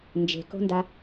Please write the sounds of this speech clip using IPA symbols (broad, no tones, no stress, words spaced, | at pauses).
nd͡ʒe̤ko̤nda